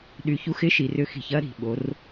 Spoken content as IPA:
ɗ y˨ ç u˧ x ɪ˦ ʃ i˨ r ʏ˧ x i̤˨ ç ɐ˦ ɾ i̤˨ ɓ o˨˦ r

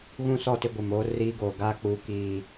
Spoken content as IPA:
ɣ ũ˦ s ɔ˦˨ t ɪ˦ ɡʷ ɪ˨ m oː˦ r iː˦ ɡ oː˨ ɡ aː˦ k͡p uː˨ k iː˨

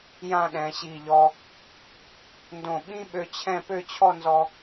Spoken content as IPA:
j ã˥˧ ɗ ɛ̃˩˧ ɕ i˧˩ ʎ ɔ˧ | n d õ˧˩ ɓ ĩ˥ ɓ ø˧ t͡ɕʰ ɛ̃˥˧ p ø˥˧ t͡ɕʰ ɔ˥˧ n z ɔ˧

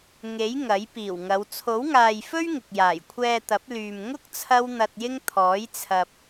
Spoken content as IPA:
ŋ e˨˥ j ŋ ɐ˨˥ j p iː˨˩ w ŋ ɐ˨˧ w t͡sʰ o˨˥ w ŋ aː˨ j f ɵ˥ ɥ ŋ ɪ˨ k̚ j aː˨˩ j kʷʰ ɛː˧ t̪ ɐ˨˥ p̚ l yː˨ m ŋ ʊ˥ k̚ t͡sʰ ɐ˥ w n̪ ɐ˧ t̚ j ɪ˥ ŋ t̪ʰ ɔː˨˥ j t͡sʰ ɐ˨ p̚

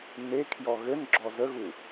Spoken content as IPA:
n e kʰ j ɔ ɣ ɘ n ɡ͡ǁ ɔ z ə ɣ u

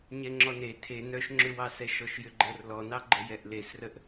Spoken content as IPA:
ɲ ɛ ŋ͡ǁ ɔ n e tʰ e n œ ʃ ŋ͡ǁ ʏ w ɑ s ɛ ʃ ɔ ʃ j ʏ ɡ͡ǃ ə r l ɔ n ɑ ɡ͡ǃ ə j ɛ ʔ l e s r ə ʔ

